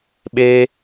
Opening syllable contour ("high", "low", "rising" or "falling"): high